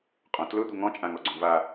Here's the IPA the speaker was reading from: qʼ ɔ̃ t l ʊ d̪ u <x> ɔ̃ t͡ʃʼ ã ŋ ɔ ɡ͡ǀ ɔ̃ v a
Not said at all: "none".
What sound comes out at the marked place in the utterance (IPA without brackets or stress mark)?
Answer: ŋ